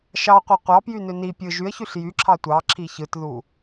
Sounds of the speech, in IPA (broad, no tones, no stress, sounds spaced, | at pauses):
ʃ ɑ qʷ æ qʷ ɑ p j y n ø n i pʲ ɯ ʒ y ə̯ ç y ɬ j y ǁʰ ɑ tʷ ɑ ǁʰ i ç ɯ t ð u